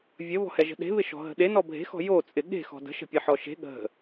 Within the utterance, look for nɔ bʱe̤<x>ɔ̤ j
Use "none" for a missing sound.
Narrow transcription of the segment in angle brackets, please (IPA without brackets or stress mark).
x